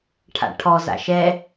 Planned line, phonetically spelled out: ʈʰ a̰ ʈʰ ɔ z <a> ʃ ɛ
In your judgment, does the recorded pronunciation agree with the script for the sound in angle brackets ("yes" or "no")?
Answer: no